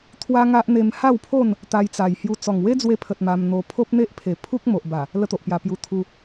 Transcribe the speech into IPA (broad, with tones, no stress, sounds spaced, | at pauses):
t̪ʰ w a˦ ŋ a˦ ʔ n̪ e˧ m h a˥˧ w pʰ o˥˧ n | t̪ a˧ j t͡s a˨˩ j h j u˧ t͡s ɔ˨˩ ŋ w e˦ d͡z w e˧ pʰ ə˨ t̚ m a˧ m n̪ o˧ pʰ o˦ p̚ n̪ e˦ ʔ pʰ e˨˩ pʰ u˦ k̚ m o˨ ʔ b a˨˩ | l ə˦ t̪ o˨ ʔ p j a˧ p j u˧ t̪ʰ u˧